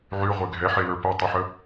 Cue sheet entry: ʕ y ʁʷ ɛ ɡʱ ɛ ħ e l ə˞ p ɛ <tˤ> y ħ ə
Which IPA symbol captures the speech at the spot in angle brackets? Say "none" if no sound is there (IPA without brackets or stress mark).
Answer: tˤ